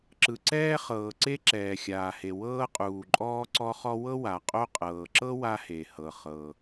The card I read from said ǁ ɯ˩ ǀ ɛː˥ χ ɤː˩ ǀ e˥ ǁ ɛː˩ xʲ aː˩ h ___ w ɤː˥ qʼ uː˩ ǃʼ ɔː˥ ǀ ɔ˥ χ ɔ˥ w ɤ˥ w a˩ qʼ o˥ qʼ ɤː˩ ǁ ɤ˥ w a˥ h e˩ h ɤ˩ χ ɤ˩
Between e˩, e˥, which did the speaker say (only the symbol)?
e˩